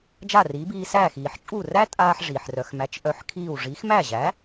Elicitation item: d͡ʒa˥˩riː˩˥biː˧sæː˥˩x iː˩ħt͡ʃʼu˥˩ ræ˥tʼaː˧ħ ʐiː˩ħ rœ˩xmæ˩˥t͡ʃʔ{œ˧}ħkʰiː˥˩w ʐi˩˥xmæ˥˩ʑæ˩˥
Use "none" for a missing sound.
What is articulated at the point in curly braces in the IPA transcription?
œ˧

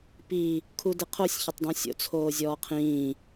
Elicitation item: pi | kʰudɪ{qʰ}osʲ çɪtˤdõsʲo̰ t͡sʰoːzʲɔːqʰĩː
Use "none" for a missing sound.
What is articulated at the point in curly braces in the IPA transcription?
qʰ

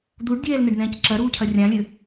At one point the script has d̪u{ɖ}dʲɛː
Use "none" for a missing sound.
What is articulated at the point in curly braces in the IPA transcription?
ɖ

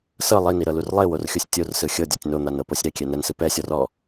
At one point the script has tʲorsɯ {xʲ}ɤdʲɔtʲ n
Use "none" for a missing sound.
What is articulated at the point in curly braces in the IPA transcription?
xʲ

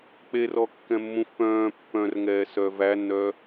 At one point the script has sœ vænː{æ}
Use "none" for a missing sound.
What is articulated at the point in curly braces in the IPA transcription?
œ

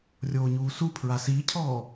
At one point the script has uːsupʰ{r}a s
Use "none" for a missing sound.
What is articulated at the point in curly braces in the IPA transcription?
ɹ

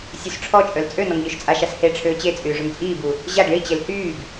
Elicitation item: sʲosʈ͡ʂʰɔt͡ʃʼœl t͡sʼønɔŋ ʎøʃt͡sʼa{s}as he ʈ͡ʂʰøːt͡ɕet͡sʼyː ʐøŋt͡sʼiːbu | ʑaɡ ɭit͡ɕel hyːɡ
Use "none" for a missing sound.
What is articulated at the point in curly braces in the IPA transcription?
ʃ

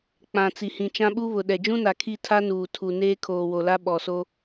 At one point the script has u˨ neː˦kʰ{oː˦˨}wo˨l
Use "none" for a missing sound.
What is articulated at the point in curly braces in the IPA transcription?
oː˨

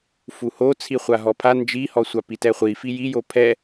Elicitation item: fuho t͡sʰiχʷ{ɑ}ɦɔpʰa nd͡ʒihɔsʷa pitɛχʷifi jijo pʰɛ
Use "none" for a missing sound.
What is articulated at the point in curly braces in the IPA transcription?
a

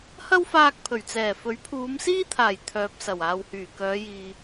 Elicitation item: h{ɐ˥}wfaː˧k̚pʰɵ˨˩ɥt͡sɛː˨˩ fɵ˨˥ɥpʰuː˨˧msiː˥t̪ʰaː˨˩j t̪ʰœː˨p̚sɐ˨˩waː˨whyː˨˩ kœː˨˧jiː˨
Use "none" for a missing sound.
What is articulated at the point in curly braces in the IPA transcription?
ɐ˥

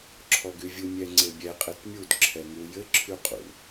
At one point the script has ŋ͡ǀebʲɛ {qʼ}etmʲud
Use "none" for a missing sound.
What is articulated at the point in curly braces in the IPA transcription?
qʼ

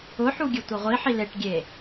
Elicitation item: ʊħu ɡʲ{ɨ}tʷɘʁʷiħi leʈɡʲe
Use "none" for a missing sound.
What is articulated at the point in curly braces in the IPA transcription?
ɨ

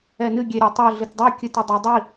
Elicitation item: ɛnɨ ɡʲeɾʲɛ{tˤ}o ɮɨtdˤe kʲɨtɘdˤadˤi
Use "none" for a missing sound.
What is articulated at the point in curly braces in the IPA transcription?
tˤ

